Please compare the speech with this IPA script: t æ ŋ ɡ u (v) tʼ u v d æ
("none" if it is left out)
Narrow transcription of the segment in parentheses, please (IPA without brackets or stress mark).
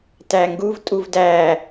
v